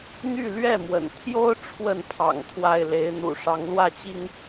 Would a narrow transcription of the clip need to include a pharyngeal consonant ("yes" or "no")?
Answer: no